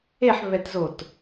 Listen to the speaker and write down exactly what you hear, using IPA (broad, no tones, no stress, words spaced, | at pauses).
eħβɛtzot